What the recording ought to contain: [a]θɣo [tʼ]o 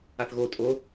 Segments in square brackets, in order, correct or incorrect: correct, correct

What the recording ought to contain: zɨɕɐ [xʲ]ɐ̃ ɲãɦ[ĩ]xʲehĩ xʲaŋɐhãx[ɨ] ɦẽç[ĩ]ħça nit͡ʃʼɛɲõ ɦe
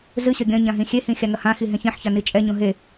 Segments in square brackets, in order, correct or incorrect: incorrect: ɡʲ, correct, incorrect: i, incorrect: ẽ

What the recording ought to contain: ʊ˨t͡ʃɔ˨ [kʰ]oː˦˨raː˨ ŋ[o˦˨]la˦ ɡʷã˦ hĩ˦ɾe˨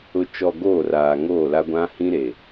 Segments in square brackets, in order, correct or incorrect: incorrect: ɡ, correct

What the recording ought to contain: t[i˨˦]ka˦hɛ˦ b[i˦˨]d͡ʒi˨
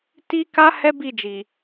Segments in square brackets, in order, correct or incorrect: incorrect: i˦, correct

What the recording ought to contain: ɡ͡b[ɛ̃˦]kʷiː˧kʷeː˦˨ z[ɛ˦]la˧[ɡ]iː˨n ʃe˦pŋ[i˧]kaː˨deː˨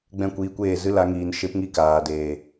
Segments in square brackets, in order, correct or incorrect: incorrect: ɛ̃˦˨, incorrect: ɨ˦, incorrect: ŋ, incorrect: i˦

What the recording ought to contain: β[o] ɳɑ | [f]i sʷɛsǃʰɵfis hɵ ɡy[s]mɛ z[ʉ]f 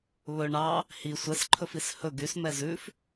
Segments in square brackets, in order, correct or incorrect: incorrect: ɵ, incorrect: h, correct, correct

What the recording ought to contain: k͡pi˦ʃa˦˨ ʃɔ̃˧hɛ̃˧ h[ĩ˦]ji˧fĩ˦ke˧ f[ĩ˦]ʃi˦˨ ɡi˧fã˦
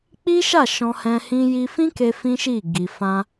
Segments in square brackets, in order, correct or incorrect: incorrect: ĩ˧, correct

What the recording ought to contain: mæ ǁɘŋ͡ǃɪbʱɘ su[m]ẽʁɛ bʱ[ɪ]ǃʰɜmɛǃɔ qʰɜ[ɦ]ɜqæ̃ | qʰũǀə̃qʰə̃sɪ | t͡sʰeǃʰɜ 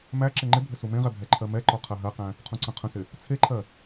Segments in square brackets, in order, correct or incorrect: correct, incorrect: ɛ, correct

